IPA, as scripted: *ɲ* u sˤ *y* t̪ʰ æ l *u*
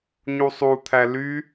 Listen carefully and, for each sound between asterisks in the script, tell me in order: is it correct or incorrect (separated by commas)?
correct, incorrect, incorrect